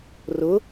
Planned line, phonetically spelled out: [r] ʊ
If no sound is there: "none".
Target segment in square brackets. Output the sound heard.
r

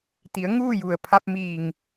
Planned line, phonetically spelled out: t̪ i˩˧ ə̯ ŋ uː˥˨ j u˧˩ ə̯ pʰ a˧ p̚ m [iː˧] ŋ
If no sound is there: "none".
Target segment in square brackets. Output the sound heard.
iː˧˩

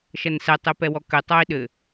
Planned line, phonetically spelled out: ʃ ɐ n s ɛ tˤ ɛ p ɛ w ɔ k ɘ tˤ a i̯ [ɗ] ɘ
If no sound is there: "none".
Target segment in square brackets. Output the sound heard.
ɗ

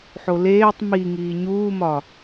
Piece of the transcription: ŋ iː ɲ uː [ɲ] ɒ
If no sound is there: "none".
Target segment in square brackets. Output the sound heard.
m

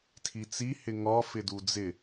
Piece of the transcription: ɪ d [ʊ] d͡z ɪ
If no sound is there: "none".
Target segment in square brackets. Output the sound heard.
u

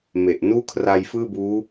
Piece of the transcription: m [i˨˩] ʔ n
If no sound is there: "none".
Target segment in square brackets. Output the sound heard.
e˨˩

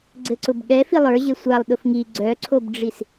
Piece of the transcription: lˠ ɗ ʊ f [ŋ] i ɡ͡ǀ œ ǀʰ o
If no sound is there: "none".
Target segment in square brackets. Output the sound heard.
ŋ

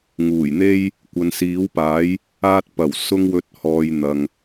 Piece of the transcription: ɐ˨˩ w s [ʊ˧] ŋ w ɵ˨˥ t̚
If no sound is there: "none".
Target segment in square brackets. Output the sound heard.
ʊ˧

